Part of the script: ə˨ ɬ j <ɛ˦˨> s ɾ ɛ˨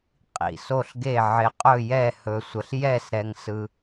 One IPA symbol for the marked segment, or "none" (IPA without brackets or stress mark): ɛ˦˨